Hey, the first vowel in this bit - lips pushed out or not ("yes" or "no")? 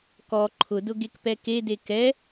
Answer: yes